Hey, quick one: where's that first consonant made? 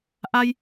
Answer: throat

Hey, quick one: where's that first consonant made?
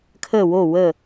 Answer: velum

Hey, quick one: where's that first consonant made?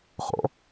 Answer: uvula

